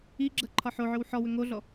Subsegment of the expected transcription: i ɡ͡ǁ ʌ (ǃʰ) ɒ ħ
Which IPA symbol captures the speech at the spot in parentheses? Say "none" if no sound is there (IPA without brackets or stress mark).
ǃʰ